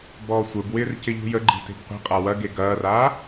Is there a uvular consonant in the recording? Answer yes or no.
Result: yes